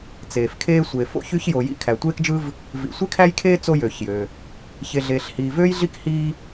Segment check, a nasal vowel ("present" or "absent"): absent